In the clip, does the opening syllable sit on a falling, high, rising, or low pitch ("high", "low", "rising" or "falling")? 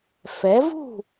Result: rising